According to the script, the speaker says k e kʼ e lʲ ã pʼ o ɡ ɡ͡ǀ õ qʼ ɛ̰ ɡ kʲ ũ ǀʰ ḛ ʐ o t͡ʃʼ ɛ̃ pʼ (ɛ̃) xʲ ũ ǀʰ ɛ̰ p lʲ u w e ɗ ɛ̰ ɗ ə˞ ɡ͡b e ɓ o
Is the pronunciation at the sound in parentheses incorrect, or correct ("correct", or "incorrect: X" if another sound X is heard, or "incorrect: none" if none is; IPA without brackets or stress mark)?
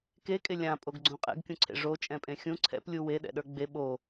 incorrect: ẽ